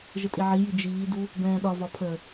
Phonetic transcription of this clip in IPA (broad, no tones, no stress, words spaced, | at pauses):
ʒətʼiʕiji d͡ʒiːdu | bɛ̃ːɗɒvɒ pʰə